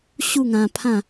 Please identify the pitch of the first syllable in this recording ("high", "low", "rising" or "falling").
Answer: falling